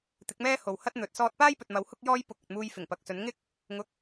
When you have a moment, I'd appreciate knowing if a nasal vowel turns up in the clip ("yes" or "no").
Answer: no